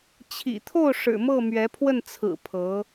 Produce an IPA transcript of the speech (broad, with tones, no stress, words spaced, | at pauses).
t͡ɕʰḭ˨˩t̪ʰo˥˩ʊ̯ ʂɻ̩˨˩mɤ˥˩ mɥɛ˧˥pʰwə˥˩nt͡sʰɹ̩˨˩ pʰɤ˧˥